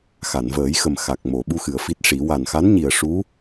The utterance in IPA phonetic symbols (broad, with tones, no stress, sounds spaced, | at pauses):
x a˨˩˨ n v əː˨˩˦ j x ə˨˩ m x a˨˩ k̚ m o˨˩˨ ɓ u˧ x ɨ˨˩˨ ə̯ f i˦˥ t̚ ʂ i˨˩˦ w a˨˩ n x a˧˥ n ɲ i˨˩ ə̯ ʂ u˧˥